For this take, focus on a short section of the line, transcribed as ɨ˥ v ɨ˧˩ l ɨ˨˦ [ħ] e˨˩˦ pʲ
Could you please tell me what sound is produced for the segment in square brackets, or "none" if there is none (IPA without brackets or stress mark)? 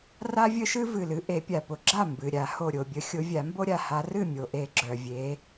ʔ